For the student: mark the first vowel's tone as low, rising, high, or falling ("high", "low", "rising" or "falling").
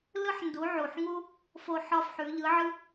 high